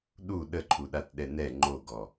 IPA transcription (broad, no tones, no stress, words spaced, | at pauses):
ɗu ɗəǃʰuɗat ɗɛnɛ ŋ͡ǃoɡɔ